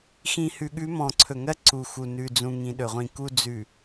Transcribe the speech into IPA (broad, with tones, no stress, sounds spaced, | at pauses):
x ĩ˨ h ʉ˨ ɠ ʉ˨˦ m ɔ̃˨ ǀʰ ɵ˨ ŋ ɜ˦ ǀ u˨ x u˨ n ʉ˨ d͡z ũ˨ ŋ ĩ˨ ɗ ɵ˨ ʁʷ ĩ˨ k u˦ d͡z ʉ˨